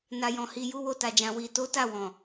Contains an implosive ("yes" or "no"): no